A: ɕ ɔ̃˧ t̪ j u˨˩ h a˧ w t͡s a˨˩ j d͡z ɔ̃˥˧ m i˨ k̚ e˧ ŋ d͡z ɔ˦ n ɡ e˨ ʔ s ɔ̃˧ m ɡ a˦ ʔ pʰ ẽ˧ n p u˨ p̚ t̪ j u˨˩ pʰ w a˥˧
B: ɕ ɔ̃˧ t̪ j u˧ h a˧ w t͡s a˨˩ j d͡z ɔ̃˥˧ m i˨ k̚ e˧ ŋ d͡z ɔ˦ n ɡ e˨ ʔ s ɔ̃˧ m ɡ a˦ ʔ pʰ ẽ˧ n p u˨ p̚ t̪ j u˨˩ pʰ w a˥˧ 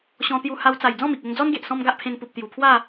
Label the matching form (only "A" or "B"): B